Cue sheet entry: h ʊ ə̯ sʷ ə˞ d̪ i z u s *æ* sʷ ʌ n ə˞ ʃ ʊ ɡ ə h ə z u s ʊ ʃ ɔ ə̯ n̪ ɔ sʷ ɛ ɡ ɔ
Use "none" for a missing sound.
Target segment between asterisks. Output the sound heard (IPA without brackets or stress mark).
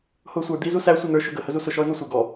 æ